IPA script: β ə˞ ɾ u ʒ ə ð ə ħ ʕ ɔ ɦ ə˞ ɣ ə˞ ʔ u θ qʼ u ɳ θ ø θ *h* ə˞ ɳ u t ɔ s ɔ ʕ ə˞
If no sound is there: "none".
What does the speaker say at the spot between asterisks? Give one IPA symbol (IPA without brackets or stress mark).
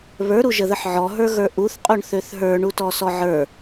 ɦ